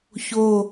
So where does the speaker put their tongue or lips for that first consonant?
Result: palate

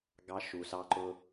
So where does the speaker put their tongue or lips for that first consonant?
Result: velum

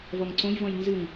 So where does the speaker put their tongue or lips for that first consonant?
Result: lips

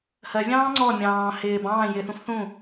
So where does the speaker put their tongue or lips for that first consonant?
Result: throat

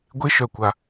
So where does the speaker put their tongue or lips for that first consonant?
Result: velum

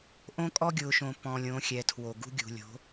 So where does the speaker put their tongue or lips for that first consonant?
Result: throat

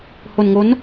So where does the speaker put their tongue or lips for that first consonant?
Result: throat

